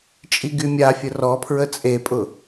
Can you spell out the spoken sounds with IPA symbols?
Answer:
t͡ʃʼiɡymʲafʲə rɔpʰɹə t͡sʼepʼʊ

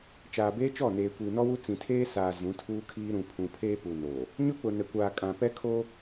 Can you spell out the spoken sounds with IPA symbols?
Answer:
t͡ʃaː˨beː˦t͡ʃɔ˦˨neː˨ kʷiː˨nɔ˦wu˦ t͡sĩ˨tʰeː˦saː˨ zũ˨˦tʰuː˦kʰiː˦ ɾũ˨pʰũ˨pʰeː˦ pu˨noː˨ | ɲʊ˦k͡pʊ˨nɛ˨ kʷaː˨kʼã˨ pɛ˦kʰoː˦

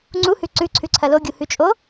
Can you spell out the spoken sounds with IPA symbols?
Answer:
ŋ͡ǀuhʉ ǀʉ ǀʰʉǀʰɐloɡʲu hʉt͡ʃʼo

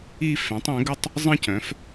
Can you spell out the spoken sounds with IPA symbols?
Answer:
i˥˧ fẽ˩˥tˤɛ̃˩˥ɡə˥˧tˤ | zˤə̃˥˧cœ̃˩˥f

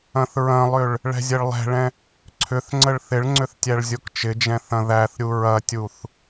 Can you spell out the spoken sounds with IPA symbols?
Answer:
ɐ̃θɹɐ̃lˠʏɭ | ɭɛ̤zʲɐɭlˠɛ̤ɭɛ̃ | ǀʰʏθŋ͡ǀəɭ θɪɭŋ͡ǀʏθ tʲæɭzʲokt͡ʃɪd͡ʒɛ̃ θɐ̃ðæθɾʲu ɹɐtʲuθ

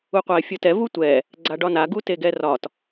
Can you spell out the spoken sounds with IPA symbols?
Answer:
uqʷaɪ̯fʲɤtɛ vutʷɛ | ɡ͡ǀaɖɒna ɡuteɡɛrɒt

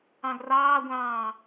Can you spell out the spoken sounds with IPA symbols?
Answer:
ɑ̃ɡrɑːɡʷɑ̃ː

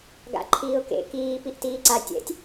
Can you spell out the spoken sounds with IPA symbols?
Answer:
ɡa̰ǃʰiːʊ̯kḛ kiː piʔtiːǀa tʲɛ̰tʲ

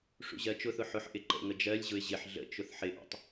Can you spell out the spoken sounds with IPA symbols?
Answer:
ʂṵʑɜt͡ʃʊθʊ ħʊħʔɪ ǃə̰ŋə d͡ʒɜlʲʑʊɪ̯ ʑɪħ ɮə̰ t͡ʃʊθħɪʔə̰tˤ

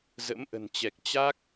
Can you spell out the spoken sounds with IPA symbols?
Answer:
zə̰˧˥mʔə̤˨˩nt͡ɕɛ˨˩k̚ t͡ɕa˦˥k̚

